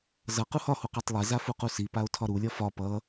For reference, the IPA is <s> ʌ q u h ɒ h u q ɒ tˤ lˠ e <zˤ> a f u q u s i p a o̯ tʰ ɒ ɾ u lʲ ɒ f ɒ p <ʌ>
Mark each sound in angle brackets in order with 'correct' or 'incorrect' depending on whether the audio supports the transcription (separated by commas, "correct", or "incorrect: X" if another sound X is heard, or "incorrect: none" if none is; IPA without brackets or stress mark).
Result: incorrect: z, incorrect: z, correct